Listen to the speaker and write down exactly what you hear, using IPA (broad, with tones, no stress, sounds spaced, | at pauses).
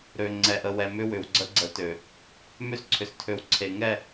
ɾ ø˨ ŋ͡ǀ ɛ˨ ʔ ə˨ w ɛ˨ m ʏ˦ w ʏ˨ w ɡ͡ǀ ə˦ ɡ͡ǀ ə˨˦ t ø˨ | m ø˦ s ǀʰ ʏ˨ s tʰ ø˨ w ǀʰ e˨ ŋ ɛ˦˨